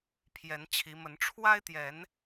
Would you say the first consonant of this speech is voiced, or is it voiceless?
voiceless